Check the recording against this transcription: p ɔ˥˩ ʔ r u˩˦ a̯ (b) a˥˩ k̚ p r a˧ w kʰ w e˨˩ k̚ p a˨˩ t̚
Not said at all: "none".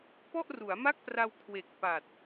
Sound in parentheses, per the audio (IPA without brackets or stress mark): m